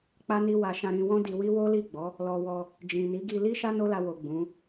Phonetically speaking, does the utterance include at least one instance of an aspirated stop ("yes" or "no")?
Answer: no